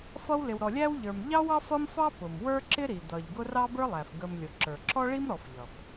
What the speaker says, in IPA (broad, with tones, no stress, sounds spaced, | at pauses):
f ʌ˦ w l ɪ˨ w ɾ ɔ˨ lʲ æ˥ w ʎ ə˞˨ m ʎ ɑ˥ w ɑ˥ f ʌ˥ m f ɑ˥ p ʊ˩ m w ə˞˥ ǁ ɪ˥ ɾ i˩ d̪ ʌ˩ ʎ ɡ ʊ˦ r ɑ˥ b ə˞˥ lˠ æ˩ f ɡ ə˨ m lʲ ʊ˩ ǁ ə˞˩ ǁ ɔ˥ ɭ i˥ m ɾ ɔ˨ f ʎ ʌ˩ f